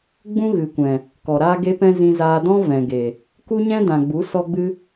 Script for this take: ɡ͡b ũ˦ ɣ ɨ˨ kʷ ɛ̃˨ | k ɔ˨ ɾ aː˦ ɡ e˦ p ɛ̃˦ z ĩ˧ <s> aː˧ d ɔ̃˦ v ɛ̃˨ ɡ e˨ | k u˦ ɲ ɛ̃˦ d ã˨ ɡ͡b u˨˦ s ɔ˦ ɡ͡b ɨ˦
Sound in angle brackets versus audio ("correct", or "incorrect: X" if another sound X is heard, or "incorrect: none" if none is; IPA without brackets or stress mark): incorrect: z